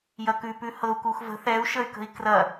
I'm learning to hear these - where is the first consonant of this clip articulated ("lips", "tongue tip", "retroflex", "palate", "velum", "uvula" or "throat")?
palate